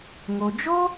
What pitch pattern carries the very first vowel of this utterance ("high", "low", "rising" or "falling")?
low